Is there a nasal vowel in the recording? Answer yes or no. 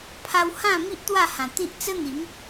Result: yes